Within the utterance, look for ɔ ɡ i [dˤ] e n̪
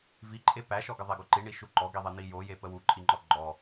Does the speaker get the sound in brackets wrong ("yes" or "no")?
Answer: yes